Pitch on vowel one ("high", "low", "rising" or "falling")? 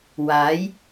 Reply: rising